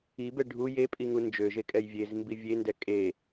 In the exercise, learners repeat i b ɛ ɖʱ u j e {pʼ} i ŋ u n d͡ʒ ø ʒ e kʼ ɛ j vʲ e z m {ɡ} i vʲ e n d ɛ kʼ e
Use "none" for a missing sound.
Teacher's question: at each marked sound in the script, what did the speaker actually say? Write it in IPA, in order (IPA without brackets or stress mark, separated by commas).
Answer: pʼ, b